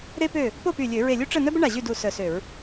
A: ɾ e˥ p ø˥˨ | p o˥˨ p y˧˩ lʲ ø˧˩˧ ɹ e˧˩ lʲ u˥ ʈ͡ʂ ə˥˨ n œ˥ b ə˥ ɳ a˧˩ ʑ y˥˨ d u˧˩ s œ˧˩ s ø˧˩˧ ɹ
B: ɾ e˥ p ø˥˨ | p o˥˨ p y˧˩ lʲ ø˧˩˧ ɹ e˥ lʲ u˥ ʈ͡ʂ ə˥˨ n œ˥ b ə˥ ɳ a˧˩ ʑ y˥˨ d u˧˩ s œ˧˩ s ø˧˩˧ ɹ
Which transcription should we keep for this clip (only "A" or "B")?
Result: A